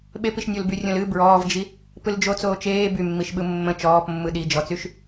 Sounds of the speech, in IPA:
ɓ e p i ʃ nʲ o l b y rʲ õ l ɨ b ɹ ɔː v d͡ʒ i | p ɯ l d͡ʒ o t͡s oː t͡ʃ eː b y mː i ʃ ɓ ɯ mː ə̃ t͡ʃ ɔː p mː ɯ ɗ i d͡ʒ ɔ t͡s y ʃ

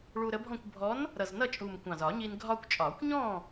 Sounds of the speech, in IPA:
ɭ u˧ ɾ ə˨˥ bʱ ɔ̃˥˨ kʷ bʱ ɔ˨˥ n | ɾ ʌ˨˩ z n ʌ˥˨ t͡ʃʼ u˨˩ m kʷ ɑ̃˨˩ z ɒ˨˩˦ ɲ i˧ n ɡʱ ɒ˧ kʷ t͡ʃʼ ɒ˨˩˦ kʷ ɲ ɔ̃˥˨

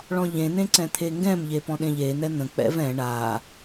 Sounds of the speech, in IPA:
ɭ ɔ̃ ʎ ẽ n̪ ẽ ǀ ɛ̃ t̪ʰ e ŋ ɡ ɛ̃ m ʎ e p ɔ̃ ɗ ẽ ʎ e n̪ ɛ n̪ ə̃ k͡p ɛ̰ v ɛ̃ ɳ a

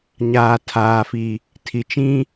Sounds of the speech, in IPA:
ɲ aː˨ tʰ aː˨ f i˨ | tʰ i˨ t͡ʃ ĩ˦

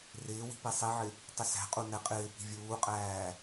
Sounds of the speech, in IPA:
r ɪː w i̤ p i sˤ i ʕ ɪ | tˤ ɪ s æ̤ qʼ u n ɛ qʼ ɪː p i̤ vʲ uː qʼ æː

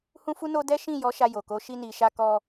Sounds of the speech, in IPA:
h ũ˦ f u˦ n o˦ d ɛ˦ ʃ ĩ˦˨ j ɔ˨˦ ʃ a˧ j o˨ k o˨˦ ʃ i˧ n i˨ ʃ a˧ k ɔ˧

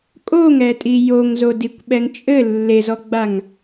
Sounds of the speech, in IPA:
kʼ o ŋ ɛ tʼ i j o ŋ z o d i kʷ ɓ ɛ ŋ t͡ʃʼ ɘ lː e z ɔ ɡ͡b a ŋ

